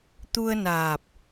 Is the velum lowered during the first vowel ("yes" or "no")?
no